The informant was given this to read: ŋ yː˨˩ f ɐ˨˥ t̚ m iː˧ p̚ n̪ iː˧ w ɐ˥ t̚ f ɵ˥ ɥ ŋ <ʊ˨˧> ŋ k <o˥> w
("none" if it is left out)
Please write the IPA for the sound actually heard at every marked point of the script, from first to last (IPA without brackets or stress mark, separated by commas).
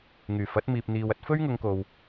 ʊ˨˧, o˨